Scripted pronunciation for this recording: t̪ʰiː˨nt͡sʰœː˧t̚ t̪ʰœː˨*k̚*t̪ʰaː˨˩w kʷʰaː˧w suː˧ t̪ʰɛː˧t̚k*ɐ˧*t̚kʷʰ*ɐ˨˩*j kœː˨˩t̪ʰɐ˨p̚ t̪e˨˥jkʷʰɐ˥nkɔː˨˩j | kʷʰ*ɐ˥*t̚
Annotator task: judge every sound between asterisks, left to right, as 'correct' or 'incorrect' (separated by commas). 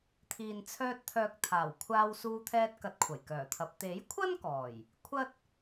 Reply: correct, incorrect, correct, correct